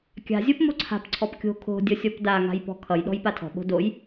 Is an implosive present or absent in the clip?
present